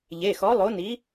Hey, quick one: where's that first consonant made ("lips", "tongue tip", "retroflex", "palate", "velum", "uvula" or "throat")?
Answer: palate